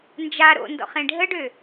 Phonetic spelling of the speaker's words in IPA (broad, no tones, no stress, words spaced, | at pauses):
nd͡ʒa ɾo̰ndɔ̰χ ẽɖʱəɖø